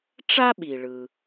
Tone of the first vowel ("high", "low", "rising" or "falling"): high